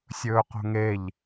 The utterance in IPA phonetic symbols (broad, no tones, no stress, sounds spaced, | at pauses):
sʲ ɵː q o̤ ŋ e ʎ